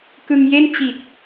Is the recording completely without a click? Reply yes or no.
yes